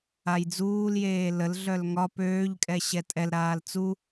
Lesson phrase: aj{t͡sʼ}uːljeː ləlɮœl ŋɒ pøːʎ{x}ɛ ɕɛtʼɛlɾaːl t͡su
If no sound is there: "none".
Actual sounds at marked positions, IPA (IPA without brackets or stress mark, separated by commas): d͡z, kʼ